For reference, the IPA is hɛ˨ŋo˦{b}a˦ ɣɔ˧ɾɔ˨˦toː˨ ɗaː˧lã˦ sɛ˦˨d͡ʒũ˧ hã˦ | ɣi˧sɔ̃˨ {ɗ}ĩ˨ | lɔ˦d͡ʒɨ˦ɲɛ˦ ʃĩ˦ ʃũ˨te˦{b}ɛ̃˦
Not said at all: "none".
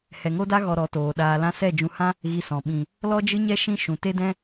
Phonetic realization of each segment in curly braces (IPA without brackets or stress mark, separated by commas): d, ɓ, d